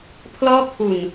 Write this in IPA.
pʰ l ɔː˥˩ kʰ u˨˩ n

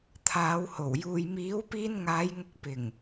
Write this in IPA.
t̪ʰ aː˨˧ w h o˨˩ w j uː˨ j m iː˨˥ w p iː˧ n ŋ aː˨˧ j ŋ ʊ˨˥ k̚ p ɪ˨˩ ŋ

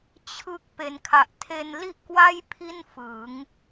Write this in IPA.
t͡ɕʰ ɯ˦˥ k̚ p e˩˦ n kʰ a˨˩ ʔ tʰ e˧ n l i˥˩ ʔ k w a˥˩ j pʰ i˥˩ n f ɯ˩˦ ŋ

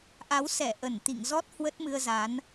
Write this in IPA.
ʔ a˨˦ w s ɛ˧˩ ʔ ə˧˩ n t̪ ḭ˧˨ ŋ z ɔ˦˥ t̚ h w ə˦˥ t̚ m ɨ˧ ə̯ z a˨˦ n

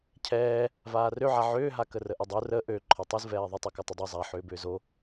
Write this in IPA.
cʰ ɛː | v aː r ø ʕ a ʕ ʏː ɦ a k ə r ə ʔ ə dˤ u r ə ʔ ø ǃʰ ɔ tˤ u z v ɛː ðˤ ə tˤ ɛ k ɔ tˤ ə dˤ o zˤ a ħ ʏː b ʏː z o

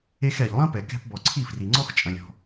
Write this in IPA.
e˧ x ɛ˩ ʎ lˠ ɐ̃˥ p ɛ˩ k ɛ̤˧ p b ɔ˩ ǀʰ i˥˩ f r i˩ ŋ͡ǀ ɔ˥ x t͡ʃʼ ɐ̃˩ lʲ ɔ̤˩

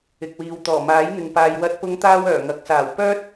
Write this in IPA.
ɪ˨ k̚ w iː˨ w t̪ ɔː˨˩ m aː˨˥ j n̪ ɪ˨ ŋ p aː˨ j w ɐ˧ t̚ p ʊ˧ ŋ t̪ aː˥ w œː˨˩ ŋ ɐ˨˥ k̚ s aː˨˩ w p œː˥ t̚

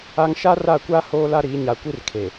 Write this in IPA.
a˦ ŋ ʃ a˦ r a˦˨ kʷ a˦ h oː˦ l a˦ ɾ iː˨˦ ɲ a˨ kʷ i˦ r kʰ e˨

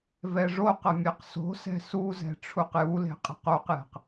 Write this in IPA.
v ɛ ʐ o q ɐ mʲ e q s o̤ s ɛ̤ s u z ɛ̤ ʈ͡ʂʰ u q j u l e̤ qʼ e̤ q o q j ɛ̤ q

